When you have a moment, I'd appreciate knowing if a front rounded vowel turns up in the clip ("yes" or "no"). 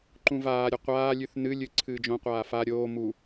no